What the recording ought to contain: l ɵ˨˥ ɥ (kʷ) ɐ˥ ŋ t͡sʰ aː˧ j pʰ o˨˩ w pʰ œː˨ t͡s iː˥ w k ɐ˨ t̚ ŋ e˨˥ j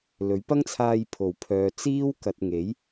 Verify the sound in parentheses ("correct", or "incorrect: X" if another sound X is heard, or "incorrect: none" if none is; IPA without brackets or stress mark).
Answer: incorrect: p